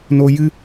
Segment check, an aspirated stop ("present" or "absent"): absent